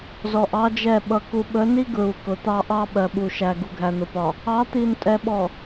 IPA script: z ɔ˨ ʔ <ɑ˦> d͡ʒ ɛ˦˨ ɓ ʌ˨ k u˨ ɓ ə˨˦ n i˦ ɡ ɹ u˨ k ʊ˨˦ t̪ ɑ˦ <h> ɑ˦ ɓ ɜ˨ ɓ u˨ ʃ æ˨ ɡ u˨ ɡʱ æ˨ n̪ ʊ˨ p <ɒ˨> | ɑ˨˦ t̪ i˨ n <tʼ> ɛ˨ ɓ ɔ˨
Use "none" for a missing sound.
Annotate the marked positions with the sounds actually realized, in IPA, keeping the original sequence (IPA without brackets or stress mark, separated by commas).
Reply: ɑ˦, ʔ, ɒ˨, tʼ